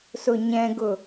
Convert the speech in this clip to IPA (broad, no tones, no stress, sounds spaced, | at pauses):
s ʊ ɲ ɛ̃ ɡ ʊ